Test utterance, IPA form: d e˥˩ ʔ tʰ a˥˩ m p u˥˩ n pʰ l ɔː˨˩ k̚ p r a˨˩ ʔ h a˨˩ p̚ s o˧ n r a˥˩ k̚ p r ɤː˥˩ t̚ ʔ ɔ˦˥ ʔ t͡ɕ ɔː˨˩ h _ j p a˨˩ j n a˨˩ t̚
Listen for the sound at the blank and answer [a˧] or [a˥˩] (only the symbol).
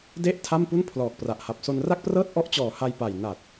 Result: a˧